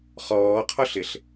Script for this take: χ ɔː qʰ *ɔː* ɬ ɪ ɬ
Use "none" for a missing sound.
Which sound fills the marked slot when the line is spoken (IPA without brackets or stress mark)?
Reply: ɔ